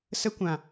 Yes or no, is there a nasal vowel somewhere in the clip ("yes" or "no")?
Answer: yes